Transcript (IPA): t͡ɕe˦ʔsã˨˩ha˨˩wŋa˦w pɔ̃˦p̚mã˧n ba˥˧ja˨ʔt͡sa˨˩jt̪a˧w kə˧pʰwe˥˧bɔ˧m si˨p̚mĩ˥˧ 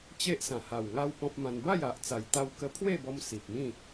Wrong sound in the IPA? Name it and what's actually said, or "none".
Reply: none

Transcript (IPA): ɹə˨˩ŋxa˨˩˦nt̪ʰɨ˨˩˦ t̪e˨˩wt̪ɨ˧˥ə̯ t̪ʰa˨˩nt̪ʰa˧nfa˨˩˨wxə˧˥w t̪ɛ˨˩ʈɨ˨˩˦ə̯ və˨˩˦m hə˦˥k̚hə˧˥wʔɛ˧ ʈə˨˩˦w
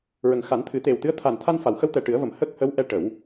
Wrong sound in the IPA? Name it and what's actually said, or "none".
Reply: none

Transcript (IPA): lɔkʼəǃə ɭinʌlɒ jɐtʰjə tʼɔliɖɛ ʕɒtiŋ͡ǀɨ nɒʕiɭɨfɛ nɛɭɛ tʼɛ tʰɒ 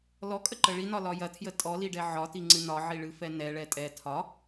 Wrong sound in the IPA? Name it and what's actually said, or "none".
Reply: ʌ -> ɒ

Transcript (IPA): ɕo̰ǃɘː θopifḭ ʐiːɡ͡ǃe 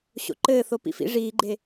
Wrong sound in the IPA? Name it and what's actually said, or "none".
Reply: i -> ḭ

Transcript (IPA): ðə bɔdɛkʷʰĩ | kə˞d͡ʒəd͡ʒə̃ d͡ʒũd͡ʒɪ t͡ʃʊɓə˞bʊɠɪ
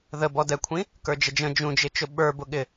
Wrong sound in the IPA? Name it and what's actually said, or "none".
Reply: none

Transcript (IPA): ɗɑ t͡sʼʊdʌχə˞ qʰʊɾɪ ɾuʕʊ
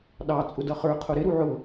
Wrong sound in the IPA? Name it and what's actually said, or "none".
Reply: none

